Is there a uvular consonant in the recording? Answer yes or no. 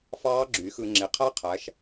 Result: yes